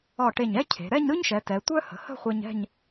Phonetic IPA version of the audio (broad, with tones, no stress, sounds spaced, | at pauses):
ɒ˧˩ ʈ e˧˩ ɲ ɛ˥ cʰ e̤˩˧ ɾ ɛ˥˧ ɲ ɾ ɯ˥ ɲ ʃ ɛ˩˧ t ɛ˩˧ tʷ œ˥ h ə̤˩˧ h ə̤˥˧ χʷ e˧ ɲ ɛ̤˥˧ ɲ